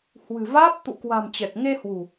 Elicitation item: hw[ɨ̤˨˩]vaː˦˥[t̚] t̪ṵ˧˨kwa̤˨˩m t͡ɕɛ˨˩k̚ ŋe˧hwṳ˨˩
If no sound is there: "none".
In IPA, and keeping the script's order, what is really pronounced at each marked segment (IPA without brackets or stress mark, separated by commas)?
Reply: ɨ̤˨˩, p̚